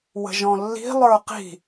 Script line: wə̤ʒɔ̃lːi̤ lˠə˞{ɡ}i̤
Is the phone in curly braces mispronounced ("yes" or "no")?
yes